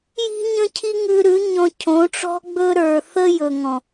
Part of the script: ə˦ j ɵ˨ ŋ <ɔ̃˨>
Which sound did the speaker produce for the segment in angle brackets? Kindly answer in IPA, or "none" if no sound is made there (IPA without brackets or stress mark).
ɔ̃˨